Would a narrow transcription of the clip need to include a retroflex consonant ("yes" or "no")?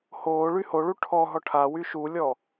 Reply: yes